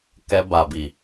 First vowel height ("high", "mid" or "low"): mid